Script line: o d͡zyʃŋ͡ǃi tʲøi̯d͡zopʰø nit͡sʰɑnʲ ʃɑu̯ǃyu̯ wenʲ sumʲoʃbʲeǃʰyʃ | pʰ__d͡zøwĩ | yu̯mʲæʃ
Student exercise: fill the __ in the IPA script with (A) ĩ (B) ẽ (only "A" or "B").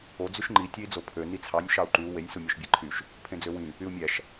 B